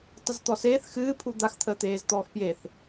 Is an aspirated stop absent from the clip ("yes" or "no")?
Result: no